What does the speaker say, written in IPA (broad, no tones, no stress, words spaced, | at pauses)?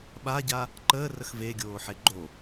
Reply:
ɓaɟa | ǃəːrəx veɡʲoːħe ɡ͡ǃo